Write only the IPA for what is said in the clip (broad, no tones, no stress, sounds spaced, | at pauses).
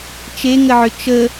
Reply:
t͡ʃ e ŋ ə ʕ ʏ t͡ʃ ə